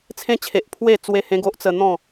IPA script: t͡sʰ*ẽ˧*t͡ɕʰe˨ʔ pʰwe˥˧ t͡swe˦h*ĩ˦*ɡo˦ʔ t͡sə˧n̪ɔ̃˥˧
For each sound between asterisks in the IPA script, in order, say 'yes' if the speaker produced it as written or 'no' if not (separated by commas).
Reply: yes, no